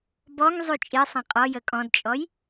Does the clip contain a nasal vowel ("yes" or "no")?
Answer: yes